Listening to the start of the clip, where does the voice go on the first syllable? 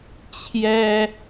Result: high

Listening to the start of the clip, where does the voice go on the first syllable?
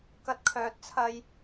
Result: high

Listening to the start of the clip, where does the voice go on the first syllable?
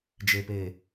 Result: low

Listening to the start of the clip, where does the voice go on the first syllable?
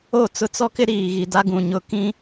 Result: falling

